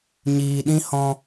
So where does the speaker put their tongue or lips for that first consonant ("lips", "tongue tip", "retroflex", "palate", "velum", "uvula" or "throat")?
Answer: palate